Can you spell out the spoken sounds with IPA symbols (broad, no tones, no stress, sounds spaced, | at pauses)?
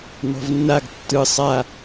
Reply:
n ɔ̤ v nː a ɡ tː ɯ sˤ a